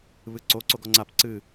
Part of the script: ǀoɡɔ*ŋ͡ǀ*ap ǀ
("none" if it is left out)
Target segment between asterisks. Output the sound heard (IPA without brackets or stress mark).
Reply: ŋ͡ǀ